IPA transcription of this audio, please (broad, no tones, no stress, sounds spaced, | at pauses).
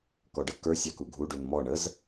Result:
k ɔ ɖ ə k ə˞ sʲ ɑ k u ɡʱ u ɖ u n m ɔ ɳ ə z